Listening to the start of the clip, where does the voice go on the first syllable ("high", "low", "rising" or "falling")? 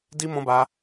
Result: high